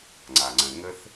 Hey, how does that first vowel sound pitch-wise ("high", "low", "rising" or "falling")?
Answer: low